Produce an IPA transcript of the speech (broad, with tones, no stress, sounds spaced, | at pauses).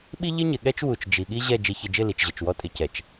ɓ i˦ ʎ ɪ˦ ɲ ɪ˨ ɠ ɛ˦ t͡ʃ w u˨ t͡ʃ d͡ʒ i˨ ɠ i˦ ʑ ɛ˦˨ d͡ʒ i˨ ç ɪ˨ d͡ʒ ɪ˦˨ l i˨ t͡ʃ ʑ ə˨ t͡ʃ w ɔ˦ tʼ ɪ˨ c ɛ˨ t͡ʃ